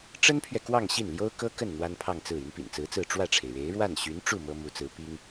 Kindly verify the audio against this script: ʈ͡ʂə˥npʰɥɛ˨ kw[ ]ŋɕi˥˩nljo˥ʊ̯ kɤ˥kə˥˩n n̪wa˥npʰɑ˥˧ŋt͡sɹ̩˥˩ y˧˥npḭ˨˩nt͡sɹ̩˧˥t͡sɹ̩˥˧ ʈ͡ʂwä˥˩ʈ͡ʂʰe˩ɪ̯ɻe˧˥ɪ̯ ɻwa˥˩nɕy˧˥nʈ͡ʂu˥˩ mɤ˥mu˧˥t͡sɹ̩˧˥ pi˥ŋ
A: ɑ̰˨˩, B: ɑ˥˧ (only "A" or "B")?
B